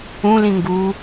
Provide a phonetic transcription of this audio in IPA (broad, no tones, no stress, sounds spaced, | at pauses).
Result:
ũ l ĩ ŋ ɡ u